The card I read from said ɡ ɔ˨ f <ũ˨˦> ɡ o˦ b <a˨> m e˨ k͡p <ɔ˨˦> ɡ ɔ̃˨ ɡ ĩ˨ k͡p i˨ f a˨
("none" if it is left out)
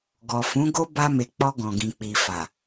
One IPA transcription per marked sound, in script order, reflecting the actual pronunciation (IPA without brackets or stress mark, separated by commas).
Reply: ũ˨˦, a˧, ɔ˧